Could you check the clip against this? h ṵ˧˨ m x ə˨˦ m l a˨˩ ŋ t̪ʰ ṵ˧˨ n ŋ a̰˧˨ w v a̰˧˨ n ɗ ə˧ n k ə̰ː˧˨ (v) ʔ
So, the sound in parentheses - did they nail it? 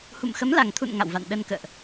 no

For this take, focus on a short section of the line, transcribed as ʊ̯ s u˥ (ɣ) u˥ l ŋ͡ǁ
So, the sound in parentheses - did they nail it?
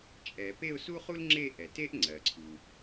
no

